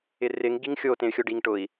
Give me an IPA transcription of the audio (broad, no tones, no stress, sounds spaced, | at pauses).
ɪ r ɪ ŋ ɡ i ŋ xʲ o t ẽ y̯ xʲ o ɖ i ŋ ʈ ʊ i̯